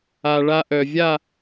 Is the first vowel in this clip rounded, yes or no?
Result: no